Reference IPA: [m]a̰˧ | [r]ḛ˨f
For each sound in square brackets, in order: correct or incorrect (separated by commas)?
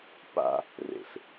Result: incorrect, correct